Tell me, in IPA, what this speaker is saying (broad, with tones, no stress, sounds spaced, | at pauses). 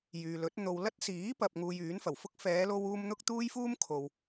j yː˨ l ɵ˨˥ t̚ n̪ o˨ w l ɐ˥ t̚ s iː˨˥ p ɐ˨ p̚ ŋ uː˧ j yː˨˥ n f ɐ˨˩ w f ʊ˥ k̚ f ɛː˨˧ l o˧ w uː˧ m n̪ ʊ˥ k̚ t̪ uː˥ j f uː˥ m kʰ o˨ w